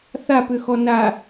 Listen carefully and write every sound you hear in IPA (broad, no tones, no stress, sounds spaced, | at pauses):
θ a p ʏ x ɔ n a